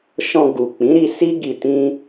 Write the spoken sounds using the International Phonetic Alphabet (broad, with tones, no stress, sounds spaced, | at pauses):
ʃ ɔ̃˧ ɡ u˨ k͡p ĩ˨˦ ɾ i˧ s i˦ ɡ i˧ t ĩ˦